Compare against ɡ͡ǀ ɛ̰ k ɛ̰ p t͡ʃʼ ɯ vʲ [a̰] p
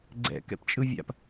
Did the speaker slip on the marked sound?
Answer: no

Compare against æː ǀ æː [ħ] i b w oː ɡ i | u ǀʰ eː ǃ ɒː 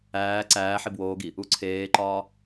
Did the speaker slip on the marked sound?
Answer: no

